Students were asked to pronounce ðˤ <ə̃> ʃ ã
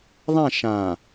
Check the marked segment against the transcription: incorrect: ã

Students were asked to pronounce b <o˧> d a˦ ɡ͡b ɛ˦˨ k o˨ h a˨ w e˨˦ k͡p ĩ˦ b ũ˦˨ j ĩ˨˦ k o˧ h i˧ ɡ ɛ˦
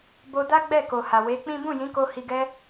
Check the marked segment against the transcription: correct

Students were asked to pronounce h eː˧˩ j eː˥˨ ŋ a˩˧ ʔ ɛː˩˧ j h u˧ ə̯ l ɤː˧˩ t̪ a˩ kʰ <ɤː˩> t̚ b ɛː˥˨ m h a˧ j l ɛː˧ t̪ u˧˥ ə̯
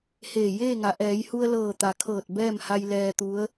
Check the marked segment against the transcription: incorrect: ɤː˧˩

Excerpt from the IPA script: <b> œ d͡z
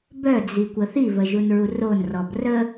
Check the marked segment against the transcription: correct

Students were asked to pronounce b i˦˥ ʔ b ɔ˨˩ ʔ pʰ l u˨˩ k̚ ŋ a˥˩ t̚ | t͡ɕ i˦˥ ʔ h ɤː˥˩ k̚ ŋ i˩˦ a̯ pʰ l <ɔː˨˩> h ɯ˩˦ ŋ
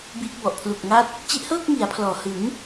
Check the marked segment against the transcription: correct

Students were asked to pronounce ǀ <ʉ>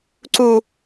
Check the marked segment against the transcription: incorrect: u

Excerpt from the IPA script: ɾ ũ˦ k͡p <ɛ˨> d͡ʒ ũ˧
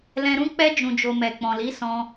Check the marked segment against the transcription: incorrect: ɛ˦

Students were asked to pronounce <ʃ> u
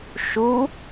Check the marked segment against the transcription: correct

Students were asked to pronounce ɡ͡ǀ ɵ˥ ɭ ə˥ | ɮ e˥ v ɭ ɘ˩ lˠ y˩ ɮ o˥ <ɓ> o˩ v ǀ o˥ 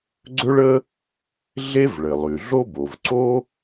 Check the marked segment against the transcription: incorrect: b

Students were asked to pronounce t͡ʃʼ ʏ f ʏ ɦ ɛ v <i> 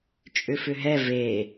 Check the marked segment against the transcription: incorrect: e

